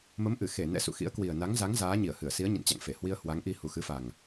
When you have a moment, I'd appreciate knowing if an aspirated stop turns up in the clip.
no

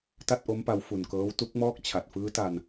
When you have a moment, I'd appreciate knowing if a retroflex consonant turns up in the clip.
no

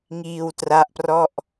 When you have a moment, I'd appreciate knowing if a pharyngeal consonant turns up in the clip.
no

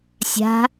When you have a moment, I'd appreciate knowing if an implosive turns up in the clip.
no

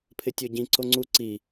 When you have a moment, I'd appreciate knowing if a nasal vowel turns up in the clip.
yes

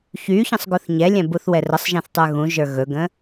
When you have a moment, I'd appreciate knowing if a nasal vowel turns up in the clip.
yes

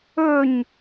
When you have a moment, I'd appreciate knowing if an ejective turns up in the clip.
no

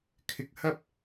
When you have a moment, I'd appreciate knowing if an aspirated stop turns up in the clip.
yes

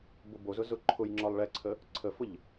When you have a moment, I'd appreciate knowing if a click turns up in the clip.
yes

